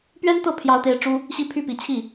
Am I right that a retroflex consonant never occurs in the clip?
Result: no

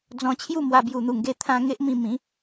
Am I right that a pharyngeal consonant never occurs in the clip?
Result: yes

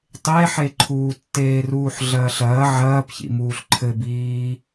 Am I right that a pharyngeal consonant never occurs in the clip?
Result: no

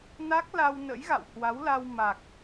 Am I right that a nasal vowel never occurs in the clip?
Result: yes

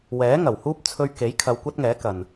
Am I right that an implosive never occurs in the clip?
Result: yes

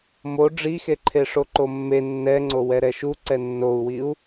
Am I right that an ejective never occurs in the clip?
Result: yes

